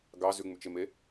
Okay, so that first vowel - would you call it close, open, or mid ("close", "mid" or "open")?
open